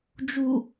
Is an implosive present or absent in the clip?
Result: absent